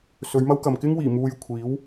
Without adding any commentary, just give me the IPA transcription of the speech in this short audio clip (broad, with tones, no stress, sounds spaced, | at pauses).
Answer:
s ɵ˨˧ ɥ m ɐ˥ w k ɐ˨ m k ɪ˥ ŋ w iː˨˩ m uː˧ j kʷʰ iː˨˥ w